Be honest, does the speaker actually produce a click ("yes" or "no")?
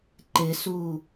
yes